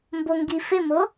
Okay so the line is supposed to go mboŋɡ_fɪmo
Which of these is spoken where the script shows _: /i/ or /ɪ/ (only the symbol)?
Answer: i